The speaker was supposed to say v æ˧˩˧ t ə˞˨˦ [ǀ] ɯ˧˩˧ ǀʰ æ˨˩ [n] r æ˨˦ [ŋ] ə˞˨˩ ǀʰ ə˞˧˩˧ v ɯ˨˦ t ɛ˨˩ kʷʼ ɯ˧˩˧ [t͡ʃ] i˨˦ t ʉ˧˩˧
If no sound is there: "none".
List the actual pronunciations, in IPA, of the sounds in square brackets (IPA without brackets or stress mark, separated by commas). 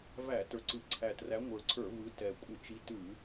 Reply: ǀ, t, ŋʷ, t͡ʃ